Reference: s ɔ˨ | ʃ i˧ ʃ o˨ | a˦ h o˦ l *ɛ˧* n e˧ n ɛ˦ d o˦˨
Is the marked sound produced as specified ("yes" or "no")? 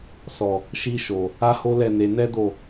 no